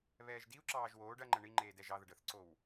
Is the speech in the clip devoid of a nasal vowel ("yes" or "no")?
yes